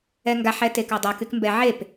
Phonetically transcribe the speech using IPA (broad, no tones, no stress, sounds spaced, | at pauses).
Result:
ɛ ŋ ɡ a ħ ɛ t e k ɑ dˤ a k y k m b ɛ ʕ e p